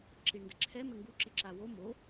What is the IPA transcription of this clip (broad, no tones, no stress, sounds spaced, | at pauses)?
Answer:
ǁ i ɳ n d ɘ ǁʰ ɛ m ɘ ŋ ɡ u ǁ i ǁ a w o m o